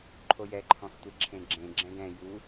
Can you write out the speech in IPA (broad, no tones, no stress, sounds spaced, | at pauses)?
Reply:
ǃʰ o j ɛ ǃʰ ɔ̃ x tʷ e ǁʰ ẽ ɡ͡ǁ ẽ ɡ͡ǁ ɛ̃ ɡ ɛ̃ j u